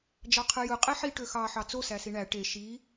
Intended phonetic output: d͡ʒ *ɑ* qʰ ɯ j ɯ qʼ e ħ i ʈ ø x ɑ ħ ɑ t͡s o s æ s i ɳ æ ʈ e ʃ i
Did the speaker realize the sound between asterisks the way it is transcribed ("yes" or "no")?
yes